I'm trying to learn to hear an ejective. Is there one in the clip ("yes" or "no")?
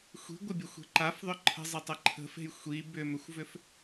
no